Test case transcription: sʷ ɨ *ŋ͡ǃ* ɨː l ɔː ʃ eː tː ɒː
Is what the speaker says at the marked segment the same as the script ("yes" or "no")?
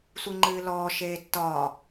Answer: yes